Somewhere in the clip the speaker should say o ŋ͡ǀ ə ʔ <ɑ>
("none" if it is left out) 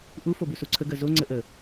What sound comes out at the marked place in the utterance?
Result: ə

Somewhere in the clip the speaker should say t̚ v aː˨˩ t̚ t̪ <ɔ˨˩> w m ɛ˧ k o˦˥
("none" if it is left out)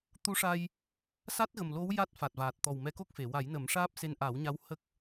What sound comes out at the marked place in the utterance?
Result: ɔ˨˩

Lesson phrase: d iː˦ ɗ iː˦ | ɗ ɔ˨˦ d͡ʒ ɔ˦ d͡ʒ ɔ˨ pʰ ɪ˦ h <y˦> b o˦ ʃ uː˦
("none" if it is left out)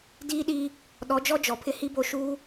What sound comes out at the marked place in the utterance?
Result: i˦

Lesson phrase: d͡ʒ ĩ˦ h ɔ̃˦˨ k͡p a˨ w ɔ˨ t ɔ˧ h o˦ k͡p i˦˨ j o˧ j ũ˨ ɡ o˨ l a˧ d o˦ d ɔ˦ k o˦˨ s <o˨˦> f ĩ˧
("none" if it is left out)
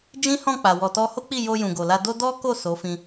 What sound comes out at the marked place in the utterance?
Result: o˨˦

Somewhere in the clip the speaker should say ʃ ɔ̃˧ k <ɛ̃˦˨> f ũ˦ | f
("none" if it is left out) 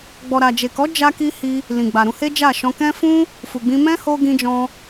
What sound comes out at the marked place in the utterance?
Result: ɛ̃˦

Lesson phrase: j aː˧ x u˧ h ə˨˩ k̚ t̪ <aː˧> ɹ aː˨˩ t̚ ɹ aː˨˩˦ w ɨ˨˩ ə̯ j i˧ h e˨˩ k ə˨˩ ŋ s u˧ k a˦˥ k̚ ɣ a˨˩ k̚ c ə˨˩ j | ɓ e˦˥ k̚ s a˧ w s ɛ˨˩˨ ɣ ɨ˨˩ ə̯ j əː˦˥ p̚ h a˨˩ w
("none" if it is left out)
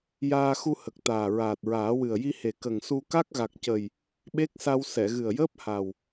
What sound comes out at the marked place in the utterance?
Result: aː˨˩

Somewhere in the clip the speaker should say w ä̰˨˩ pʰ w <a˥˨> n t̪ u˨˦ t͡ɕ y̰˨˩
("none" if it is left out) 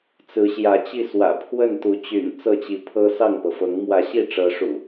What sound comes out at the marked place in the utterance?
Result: ə˥˨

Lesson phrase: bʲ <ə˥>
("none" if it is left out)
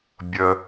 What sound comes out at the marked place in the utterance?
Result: ə˩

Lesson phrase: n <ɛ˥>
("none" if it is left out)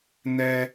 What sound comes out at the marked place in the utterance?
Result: ɛ˥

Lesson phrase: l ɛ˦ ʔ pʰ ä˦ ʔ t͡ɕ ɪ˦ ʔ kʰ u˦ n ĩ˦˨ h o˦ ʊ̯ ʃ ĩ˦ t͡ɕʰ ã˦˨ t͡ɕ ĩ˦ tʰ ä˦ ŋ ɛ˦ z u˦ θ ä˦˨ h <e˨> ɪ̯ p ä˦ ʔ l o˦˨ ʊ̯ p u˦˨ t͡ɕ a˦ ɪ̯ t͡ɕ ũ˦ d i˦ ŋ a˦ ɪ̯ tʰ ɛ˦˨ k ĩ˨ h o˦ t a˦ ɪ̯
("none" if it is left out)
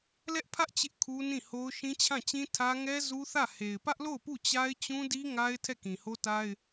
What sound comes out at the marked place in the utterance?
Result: e˨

